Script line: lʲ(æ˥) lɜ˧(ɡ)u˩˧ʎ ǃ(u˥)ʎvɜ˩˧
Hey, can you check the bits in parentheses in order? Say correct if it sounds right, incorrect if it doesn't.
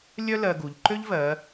incorrect: œ˥, correct, incorrect: ø˥

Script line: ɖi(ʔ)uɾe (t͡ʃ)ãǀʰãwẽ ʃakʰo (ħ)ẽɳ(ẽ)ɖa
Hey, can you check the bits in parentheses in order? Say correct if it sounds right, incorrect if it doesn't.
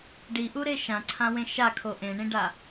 correct, incorrect: ʃ, incorrect: ʔ, incorrect: ĩ

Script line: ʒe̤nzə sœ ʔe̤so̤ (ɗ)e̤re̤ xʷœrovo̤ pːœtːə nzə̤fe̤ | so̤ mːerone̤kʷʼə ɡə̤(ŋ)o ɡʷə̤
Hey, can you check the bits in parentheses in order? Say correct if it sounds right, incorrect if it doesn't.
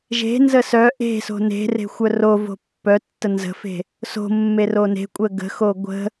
incorrect: n, incorrect: x

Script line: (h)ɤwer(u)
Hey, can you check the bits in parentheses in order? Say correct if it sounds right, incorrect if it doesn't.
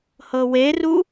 correct, correct

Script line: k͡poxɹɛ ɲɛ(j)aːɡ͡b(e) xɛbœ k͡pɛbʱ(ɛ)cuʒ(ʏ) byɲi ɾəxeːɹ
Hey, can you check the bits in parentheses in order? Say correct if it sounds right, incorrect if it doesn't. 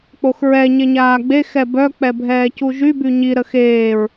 incorrect: ɲ, correct, incorrect: ɛː, incorrect: y

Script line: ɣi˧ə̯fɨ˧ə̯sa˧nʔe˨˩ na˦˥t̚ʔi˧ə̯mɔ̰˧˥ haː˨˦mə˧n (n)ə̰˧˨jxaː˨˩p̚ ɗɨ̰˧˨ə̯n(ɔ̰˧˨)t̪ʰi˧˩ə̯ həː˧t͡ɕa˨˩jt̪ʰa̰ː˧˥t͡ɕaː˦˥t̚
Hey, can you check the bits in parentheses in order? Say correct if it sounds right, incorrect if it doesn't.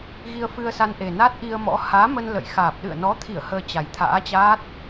incorrect: l, incorrect: ɔ˨˦

